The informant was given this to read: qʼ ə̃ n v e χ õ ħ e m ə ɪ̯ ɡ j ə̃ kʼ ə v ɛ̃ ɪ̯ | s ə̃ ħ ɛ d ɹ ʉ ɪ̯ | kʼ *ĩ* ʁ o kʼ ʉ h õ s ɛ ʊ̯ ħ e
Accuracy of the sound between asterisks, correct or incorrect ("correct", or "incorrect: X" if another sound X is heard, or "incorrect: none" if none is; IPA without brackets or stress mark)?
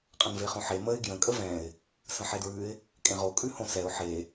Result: incorrect: ẽ